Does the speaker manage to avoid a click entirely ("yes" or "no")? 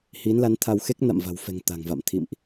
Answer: yes